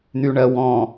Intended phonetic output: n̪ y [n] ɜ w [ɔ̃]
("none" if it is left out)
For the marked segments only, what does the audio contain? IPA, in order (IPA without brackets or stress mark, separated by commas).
ɳ, ɔ̃